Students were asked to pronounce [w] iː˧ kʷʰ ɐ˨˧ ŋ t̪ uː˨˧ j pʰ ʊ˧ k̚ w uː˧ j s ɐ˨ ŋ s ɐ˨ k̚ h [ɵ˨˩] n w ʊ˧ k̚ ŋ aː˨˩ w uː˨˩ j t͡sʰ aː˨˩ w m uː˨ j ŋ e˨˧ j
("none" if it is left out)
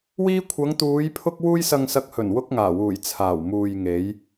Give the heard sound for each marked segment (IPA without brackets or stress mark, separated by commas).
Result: w, ɵ˨˩